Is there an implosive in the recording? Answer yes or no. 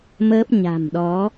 yes